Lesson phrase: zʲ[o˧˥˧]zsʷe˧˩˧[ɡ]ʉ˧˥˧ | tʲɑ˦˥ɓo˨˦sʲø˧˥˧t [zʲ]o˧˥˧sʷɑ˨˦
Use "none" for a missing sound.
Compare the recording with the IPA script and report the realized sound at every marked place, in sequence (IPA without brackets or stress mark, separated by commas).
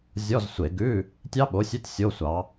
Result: ɔ˧˥˧, ɡ, sʲ